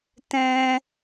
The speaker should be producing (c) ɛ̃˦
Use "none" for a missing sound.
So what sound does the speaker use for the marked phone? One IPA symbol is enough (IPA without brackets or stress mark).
t